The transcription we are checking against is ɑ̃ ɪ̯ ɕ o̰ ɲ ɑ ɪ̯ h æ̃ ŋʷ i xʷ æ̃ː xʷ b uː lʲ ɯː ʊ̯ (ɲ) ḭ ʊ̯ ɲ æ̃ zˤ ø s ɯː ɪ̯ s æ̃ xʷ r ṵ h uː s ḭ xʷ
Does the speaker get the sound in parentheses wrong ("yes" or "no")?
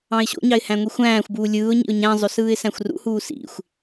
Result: no